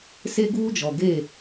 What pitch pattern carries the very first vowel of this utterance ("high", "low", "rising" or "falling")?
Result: high